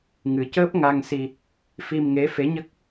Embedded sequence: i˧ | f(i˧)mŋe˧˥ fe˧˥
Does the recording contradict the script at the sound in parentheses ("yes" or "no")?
no